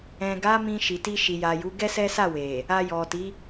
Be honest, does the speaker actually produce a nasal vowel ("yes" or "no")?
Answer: yes